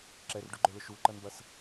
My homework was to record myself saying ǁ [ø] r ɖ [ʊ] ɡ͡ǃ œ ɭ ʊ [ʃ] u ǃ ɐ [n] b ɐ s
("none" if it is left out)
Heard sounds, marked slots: ɛ, ʊ, ʃ, n

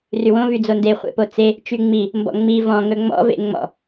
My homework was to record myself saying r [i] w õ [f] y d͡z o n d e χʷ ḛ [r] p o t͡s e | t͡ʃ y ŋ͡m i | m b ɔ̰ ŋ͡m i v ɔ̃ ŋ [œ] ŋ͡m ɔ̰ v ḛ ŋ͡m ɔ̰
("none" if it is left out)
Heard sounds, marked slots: y, v, none, ɵ

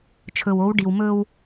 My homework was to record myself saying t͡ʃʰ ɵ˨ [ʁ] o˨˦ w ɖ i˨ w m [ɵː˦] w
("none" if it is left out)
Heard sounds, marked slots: w, ɵː˦

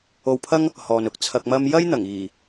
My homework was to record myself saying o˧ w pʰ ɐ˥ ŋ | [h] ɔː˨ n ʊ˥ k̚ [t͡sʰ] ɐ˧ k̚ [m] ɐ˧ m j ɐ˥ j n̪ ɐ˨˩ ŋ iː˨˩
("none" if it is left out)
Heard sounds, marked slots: h, t͡sʰ, m

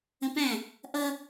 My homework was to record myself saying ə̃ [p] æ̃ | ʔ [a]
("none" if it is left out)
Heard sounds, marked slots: p, ʌ

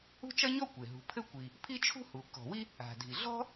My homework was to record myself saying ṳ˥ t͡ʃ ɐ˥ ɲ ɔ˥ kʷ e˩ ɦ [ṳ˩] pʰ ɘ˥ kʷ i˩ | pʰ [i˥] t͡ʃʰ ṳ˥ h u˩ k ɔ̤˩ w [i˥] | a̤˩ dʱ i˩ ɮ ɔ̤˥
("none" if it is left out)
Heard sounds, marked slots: ṳ˩, i˥, i˥

